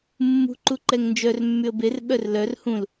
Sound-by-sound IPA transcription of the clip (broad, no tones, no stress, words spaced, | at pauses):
mːṳǃuǃɛŋ nd͡ʒœrmːyə̯ ber ɓœrlœr hũl